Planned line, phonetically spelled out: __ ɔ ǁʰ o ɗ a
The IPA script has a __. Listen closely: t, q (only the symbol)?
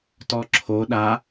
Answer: t